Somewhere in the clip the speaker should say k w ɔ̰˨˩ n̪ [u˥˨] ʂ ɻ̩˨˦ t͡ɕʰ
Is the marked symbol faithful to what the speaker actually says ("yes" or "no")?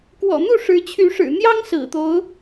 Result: yes